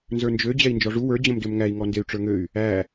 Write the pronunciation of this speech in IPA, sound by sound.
n z ə˞ n d͡ʒ ø d͡ʑ ɛ i̯ n d͡ʒ ɔ ʐ u w ə˞ d͡ʑ ə̃ m d ø m ŋ æ i̯ ŋ ɔ n d e y̯ ʈ͡ʂ ə˞ ŋ ø y̯ | æ

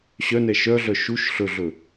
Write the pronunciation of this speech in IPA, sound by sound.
ɕ œ n ɛ ʃ œ ɮ œ ʃ u ʃ ɬ ɵ ɮ ɵ

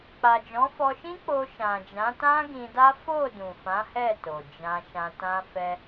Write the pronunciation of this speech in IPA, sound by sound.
k͡p a˨ d͡ʒ ɔ̃˨˦ f ɔ˧ ʃ ĩ˦ k͡p o˧ ʃ ã˨ d͡ʒ ã˨˦ t ã˦ ɡ ĩ˧ d a˦ f o˦˨ d ũ˨ f ã˨˦ h ɛ˦˨ t o˨ d͡ʒ ã˧ ʃ ã˧ t ã˧ f ɛ˧

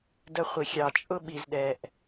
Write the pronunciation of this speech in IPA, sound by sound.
d ə˧ χʷ i˨ xʲ ɑ˨ t͡ʃʼ ʊ˦ ɓ i˧ z ɗ ɛ˧ ʔ

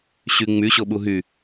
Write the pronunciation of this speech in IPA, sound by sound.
ɕ y ŋ͡m y ɕ o ɓ u ɦ y

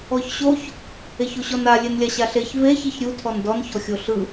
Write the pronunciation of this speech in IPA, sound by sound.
ɔ ç ɕ o ç | e ç o ɕ ɔ n a lʲ e n lʲ a ɕ a ɬ e ç v e ç i ç ɾʲ u tʰ ɔ n d ɔ n ç ɔ xʲ o ɬ ɯ

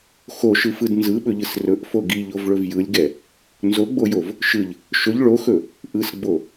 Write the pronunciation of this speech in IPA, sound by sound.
x o ʃ ɯ f ɯ d n z ɯ ɓ ɵ ʎ ɯ s r ɵ ʔ f o ɡ i ʎ o v ɭ ɵ v j ɯ lʲ ɡ ɛ | n z o ɡ͡b o j o v | ʃ ɯ ʎ | ʃ ɵ ʎ ɭ o x ɵ | ʔ ɯ s ɡ͡b o

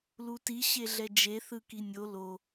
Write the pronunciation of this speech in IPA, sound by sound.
l u t i ɕ e ɮ ɛ d͡ʒ e θ ɯ k i nʲ o l o

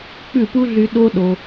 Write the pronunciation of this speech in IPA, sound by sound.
k͡p ʉ˦˨ p u˦ ɮ y˧ ɗ o˦ ɗ o˧

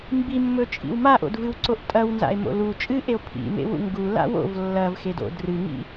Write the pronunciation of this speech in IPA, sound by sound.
m b i mː ɵ t͡ʃʼ ḭ w m a ʔ o̰ d v ɨ w ǀ o ʔ tʼ ɐ w n z a̰ e̯ m o̰ l u t͡ʃʼ ɨ ʔ e o̯ pʰ ḭ m ḛ w ṵ ŋ ɡ u l a̰ w o̰ v lː ɐ v x e d o̰ d r ɨ ŋ ḭ

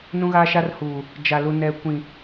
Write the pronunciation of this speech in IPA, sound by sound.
n ũ˦ ɣ aː˦ ʃ a˦ r h uː˨ | d͡ʒ a˨ l u˨ n ɛ˨ kʷ ĩ˨

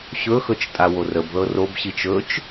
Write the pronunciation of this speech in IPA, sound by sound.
ɕ ɵ x ɵ t͡ʃ tʼ a w o r ə b ð ɤ r o b ɕ i t͡ʃ ɵ t͡ʃ

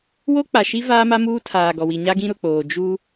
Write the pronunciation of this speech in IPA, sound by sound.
w o˦ k͡p a˨ ʃ i˦ v aː˦ m a˦ m uː˦ tʰ aː˨ ɡ ɔ˨ w i˨ ɲ a˦ ɡ ĩ˦ ɾ ʊ˨ k͡p oː˨ d͡ʒ u˦

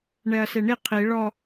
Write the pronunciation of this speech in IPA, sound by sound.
ɳ ɛ ɐ̯ s e ɳ i qʰ i ɭ ɔ

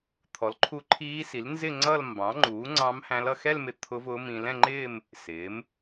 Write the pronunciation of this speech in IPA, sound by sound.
t̪ʰ ɔ˩˥ l ǃʰ u˧˥ ǃʰ iː˧˥ s i˩˥ l n z ɪ˥˧ ŋ͡ǀ ʌ˥˧ l m b ɑ̃˩˥ ŋ͡ǃ uː˩˥ ŋ͡ǀ ɑ̃˧˥ m h æ̃˧˥ l ʌ˥˧ x ɛ˥˧ l m ɪ˧ t̪ʰ ʊ˧˥ v ʊː˧˥ m ĩ˧ l ɛ̃˥˧ ŋ͡ǃ ɪː˥˧ m | s ɪː˩˥ m

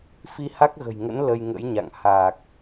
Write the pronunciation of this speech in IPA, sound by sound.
f i˧ h a˦˥ k̚ ɣ ə̤˨˩ j ŋ ə̰˧˥ n l ə˧ j ŋ ə̰˧˥ j ɲ a̰˧˨ ŋ h aː˨˩ k̚

